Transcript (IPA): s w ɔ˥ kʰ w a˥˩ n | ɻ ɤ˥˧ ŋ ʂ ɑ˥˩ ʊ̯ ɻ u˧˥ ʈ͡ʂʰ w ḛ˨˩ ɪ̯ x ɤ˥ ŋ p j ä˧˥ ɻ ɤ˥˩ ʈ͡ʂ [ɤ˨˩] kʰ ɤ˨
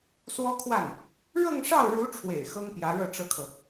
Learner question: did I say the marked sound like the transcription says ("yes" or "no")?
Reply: no